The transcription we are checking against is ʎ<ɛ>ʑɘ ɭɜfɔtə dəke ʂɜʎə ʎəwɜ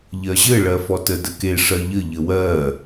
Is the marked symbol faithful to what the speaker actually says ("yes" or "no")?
no